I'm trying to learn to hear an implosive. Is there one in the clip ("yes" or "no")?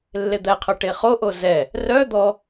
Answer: no